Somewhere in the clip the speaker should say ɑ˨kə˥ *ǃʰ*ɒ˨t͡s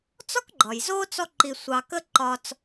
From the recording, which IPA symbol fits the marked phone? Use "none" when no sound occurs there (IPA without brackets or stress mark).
ǃ